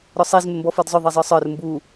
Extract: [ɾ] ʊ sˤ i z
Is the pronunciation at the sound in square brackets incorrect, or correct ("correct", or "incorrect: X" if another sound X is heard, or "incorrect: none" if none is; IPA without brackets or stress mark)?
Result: correct